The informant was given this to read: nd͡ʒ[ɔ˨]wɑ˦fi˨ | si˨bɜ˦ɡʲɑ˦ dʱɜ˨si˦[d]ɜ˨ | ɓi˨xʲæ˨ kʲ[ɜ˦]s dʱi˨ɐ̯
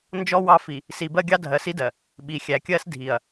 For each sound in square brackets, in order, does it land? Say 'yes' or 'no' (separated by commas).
no, yes, yes